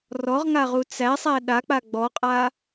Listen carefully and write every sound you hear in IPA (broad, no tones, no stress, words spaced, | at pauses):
rɔʁŋaʁu t͡sæsˤæ ɗak͡pa ɡ͡bɔqʼa